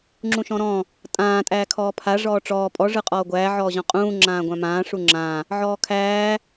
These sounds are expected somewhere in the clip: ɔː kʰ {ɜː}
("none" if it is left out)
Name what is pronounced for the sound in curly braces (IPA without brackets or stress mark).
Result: æː